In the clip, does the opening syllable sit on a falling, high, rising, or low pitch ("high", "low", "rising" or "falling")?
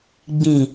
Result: low